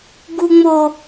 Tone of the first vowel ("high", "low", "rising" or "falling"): high